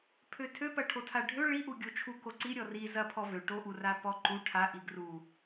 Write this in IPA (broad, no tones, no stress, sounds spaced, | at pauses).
pʰ ø tʰ ø p ɐ ʈʰ o tʰ a ɖʱ ø ɭ i ʔ u ɡʲ o t͡ʃʰ u k o ǀ i ɾʲ ɔ r i z ɐ pʰ ɔ v ø ʈ o ʔ u r a p ɔ ǃ u ʈʰ a ʔ i ɡ r u